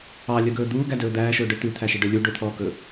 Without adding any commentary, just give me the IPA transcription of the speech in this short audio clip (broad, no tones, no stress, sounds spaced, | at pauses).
ɑ lʲ œ ɡ ɵː d̪ uː ɡ æ d ɵː d̪ æː ʃ ɵː ɖ œ t̪ ʉ t̪ʰ æ ʃ e ɖ œ lʲ u ɖ ɵ t̪ʰ ɔː k ɵː